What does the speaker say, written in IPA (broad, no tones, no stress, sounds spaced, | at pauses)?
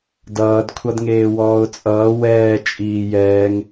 d ʌː d kʷʰ ʌ d ŋ eː w ɔː ʊ̯ t͡sʼ ʌː w ɛː t͡ʃʼ iː j ɛː ŋ